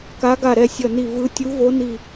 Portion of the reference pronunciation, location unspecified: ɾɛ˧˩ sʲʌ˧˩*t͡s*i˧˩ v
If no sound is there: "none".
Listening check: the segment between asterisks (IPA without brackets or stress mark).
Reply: n